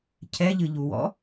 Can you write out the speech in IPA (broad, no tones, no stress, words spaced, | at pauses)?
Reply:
cʰɛʎɨʎuwɔ̰